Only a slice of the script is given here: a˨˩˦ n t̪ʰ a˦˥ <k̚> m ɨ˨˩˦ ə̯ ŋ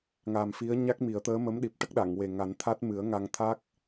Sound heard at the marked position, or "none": t̚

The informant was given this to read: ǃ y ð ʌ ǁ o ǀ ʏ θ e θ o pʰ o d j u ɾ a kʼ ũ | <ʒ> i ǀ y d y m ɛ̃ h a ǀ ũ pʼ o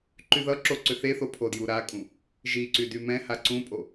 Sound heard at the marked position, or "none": ʒ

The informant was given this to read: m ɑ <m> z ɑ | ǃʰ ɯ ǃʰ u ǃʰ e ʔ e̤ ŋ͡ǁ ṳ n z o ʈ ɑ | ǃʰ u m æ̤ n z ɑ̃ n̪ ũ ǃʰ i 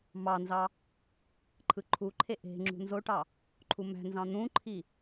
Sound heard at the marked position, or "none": n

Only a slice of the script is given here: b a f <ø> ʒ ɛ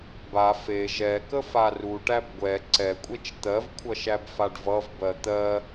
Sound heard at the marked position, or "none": e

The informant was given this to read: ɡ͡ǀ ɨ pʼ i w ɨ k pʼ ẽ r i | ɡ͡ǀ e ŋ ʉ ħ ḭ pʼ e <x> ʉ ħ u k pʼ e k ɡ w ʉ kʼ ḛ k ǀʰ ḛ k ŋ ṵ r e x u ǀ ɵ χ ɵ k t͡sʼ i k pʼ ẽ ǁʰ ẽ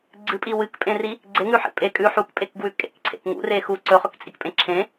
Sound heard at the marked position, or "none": kʼ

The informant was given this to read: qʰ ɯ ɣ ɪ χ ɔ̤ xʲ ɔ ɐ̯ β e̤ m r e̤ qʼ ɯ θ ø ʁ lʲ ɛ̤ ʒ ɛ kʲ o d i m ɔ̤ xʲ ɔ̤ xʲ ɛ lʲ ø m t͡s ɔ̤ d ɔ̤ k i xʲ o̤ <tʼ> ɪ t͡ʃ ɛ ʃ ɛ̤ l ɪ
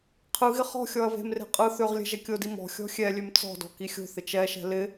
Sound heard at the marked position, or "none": θ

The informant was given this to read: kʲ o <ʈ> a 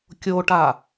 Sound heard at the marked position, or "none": ʈ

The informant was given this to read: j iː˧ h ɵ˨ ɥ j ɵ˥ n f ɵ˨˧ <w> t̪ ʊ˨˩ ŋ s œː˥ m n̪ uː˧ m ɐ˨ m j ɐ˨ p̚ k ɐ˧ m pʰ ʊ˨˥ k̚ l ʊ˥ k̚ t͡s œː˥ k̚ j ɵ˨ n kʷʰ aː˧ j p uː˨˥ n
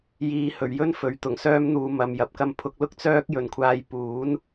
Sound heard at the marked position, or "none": ɥ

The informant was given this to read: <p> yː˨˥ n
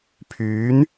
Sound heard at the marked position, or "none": pʰ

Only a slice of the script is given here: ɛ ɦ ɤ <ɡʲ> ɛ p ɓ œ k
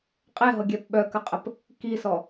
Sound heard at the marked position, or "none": ɡʲ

